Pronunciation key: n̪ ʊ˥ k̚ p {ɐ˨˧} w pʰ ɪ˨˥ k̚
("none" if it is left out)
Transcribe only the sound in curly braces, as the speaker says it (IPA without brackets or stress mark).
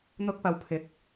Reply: ɐ˨˧